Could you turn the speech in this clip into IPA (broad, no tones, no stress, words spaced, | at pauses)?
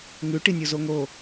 ŋʉʈinʲozo ŋo